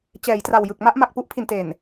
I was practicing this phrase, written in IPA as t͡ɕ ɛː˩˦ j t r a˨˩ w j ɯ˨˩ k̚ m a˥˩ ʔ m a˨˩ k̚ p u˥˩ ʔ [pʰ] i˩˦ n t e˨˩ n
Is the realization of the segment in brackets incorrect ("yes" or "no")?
no